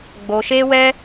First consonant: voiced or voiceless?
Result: voiced